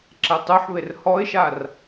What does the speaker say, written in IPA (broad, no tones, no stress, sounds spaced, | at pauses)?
ǁ ɛ tˤ u ħ β e r h ɔ ɪ̯ ʃ a r